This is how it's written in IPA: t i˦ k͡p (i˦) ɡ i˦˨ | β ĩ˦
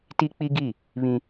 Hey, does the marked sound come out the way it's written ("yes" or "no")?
yes